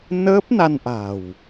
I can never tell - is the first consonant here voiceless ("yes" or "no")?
no